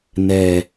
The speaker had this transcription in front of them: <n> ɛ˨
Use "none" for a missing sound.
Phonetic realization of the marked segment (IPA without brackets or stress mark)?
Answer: n